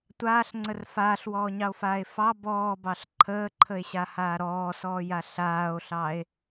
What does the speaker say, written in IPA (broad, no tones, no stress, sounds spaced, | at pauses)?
tʷ aː ɬ ŋ͡ǀ ə r f aː ɬ w ɔː ɲ ɑ o̯ f aː e̯ f ɑ b ɔː b ɑ ɬ ǃʰ əː ǃʰ ə e̯ ɕ a h aː ɾ ɔː s ɔː j a ɬ aː o̯ ɬ ɑ e̯